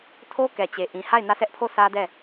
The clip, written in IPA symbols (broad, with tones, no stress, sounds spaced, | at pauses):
tʰ o˦ k ɛ˨ t͡ɕ e˨ ʔ ĩ˨ h a˦˨ ɪ̯ n ä˦˨ s ɛ˦ ʔ pʰ o˦˨ sʰ ä˦ d ɛ˦˨